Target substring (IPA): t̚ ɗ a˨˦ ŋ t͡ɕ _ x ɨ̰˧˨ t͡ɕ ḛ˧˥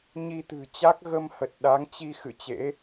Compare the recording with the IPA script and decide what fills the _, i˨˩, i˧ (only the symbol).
i˧